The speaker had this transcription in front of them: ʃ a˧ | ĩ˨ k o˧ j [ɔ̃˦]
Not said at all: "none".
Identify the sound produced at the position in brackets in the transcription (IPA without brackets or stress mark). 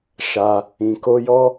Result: ɔ˦